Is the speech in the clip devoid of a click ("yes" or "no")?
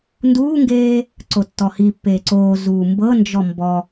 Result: no